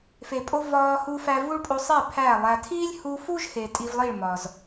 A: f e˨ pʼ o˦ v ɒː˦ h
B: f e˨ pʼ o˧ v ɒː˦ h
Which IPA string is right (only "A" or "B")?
B